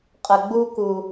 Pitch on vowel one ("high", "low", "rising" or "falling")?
low